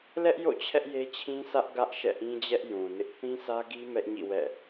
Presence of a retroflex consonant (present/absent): absent